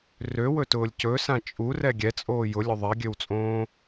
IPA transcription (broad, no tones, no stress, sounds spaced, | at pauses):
r ø w ɵ t ʊː lʲ c ɵ s ã t͡ʃʼ u r ɛ ɡʲ ɛ t͡sʼ oː j ʊ lʲ ʊ ðˤ ɛ ɡʲ ø w t͡sʼ õː